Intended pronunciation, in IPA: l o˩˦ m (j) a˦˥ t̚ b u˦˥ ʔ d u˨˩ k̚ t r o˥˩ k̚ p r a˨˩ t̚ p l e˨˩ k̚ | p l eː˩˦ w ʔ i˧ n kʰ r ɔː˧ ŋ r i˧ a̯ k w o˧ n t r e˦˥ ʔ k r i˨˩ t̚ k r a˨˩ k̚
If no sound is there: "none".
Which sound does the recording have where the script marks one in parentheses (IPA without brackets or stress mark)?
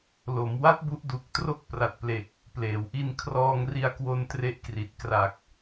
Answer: w